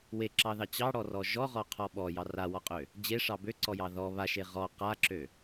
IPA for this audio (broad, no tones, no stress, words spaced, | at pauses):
weǁɑðɑ t͡ɕɑɽɔrɔ ʒɔʁɔqʰɔ ɓɔjɑ rawɔqʼø | d͡ʑeʂɑ bøǀɔjɑ ðɔ βaʃe ʁɔ qaǁø